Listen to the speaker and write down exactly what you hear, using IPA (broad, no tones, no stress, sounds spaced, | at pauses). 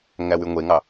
ŋ æ w y ŋʷ e ŋ ɑ